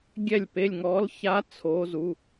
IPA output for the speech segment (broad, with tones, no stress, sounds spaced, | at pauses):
ɡʲ ɛ˥˧ lʲ p e˧˥˧ lʲ ŋ ɔ˦˥ l ç a˦˥ t͡sʰ o˦˥ z u˧˥˧